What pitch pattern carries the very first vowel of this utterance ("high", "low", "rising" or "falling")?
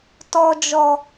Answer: low